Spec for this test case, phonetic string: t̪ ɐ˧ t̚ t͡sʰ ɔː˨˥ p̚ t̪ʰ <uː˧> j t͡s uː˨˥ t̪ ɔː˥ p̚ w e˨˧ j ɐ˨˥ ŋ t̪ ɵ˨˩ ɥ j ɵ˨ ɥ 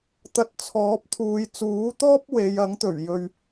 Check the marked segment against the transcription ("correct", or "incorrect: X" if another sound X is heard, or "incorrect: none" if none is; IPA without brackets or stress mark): incorrect: uː˨˧